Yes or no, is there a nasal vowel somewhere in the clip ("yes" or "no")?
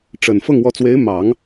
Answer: no